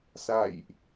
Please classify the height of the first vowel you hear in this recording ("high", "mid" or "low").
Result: low